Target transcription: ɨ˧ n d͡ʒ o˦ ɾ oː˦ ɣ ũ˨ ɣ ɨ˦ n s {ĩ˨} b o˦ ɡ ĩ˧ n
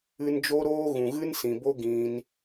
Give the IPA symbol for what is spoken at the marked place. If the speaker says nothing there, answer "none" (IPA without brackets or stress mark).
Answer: ĩ˨